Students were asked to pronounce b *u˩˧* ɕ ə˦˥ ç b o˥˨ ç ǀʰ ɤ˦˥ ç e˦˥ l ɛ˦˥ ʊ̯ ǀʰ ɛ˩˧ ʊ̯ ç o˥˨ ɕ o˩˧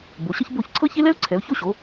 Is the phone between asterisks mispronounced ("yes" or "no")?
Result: yes